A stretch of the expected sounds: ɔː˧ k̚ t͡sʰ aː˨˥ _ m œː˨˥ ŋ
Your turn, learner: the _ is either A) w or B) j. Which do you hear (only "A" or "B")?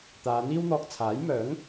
B